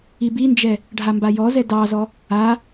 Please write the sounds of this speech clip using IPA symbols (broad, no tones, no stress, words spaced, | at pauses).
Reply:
ibind͡ʒɛ | ɖʱambajɔzɛ dɑzɔ | a